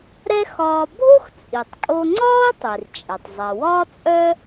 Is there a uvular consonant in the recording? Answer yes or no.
no